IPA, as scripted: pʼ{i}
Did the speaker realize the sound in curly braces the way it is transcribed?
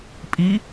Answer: yes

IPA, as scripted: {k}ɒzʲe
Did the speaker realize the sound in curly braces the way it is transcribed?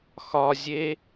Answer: no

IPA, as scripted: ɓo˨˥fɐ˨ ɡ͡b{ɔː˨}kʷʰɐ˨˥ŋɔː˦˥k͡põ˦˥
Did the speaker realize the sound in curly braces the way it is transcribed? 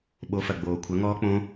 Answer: no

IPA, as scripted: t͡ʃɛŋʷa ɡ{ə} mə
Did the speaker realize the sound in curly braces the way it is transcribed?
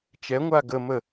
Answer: yes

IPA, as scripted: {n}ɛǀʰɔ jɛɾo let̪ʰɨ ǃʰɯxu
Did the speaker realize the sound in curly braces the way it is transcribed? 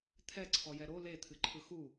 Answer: no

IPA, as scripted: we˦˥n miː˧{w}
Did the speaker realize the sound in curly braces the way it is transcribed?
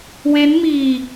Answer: no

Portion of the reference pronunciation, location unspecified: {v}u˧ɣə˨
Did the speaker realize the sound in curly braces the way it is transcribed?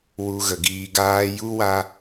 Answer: no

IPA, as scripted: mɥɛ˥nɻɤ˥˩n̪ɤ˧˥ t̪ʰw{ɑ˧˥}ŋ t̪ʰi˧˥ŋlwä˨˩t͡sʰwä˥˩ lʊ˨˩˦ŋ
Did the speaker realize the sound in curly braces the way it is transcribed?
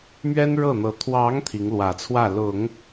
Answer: yes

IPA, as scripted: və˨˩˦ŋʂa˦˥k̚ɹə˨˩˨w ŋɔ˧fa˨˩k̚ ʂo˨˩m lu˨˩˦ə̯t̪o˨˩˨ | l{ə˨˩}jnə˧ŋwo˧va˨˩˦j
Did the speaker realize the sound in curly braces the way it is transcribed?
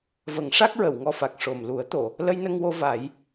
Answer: no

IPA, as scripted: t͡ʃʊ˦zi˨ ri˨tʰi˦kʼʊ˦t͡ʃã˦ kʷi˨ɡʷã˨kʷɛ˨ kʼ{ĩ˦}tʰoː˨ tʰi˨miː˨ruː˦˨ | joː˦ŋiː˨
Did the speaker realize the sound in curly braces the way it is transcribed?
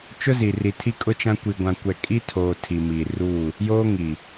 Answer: no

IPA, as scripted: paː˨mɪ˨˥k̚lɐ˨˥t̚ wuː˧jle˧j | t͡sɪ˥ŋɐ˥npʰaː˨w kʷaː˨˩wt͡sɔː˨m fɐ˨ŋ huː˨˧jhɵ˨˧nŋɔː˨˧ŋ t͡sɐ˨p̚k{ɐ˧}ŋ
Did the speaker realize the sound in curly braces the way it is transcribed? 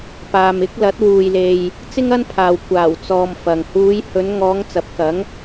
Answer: no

